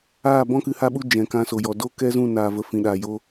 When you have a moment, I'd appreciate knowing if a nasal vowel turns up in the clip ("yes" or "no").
yes